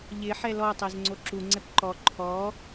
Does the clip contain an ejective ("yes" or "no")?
no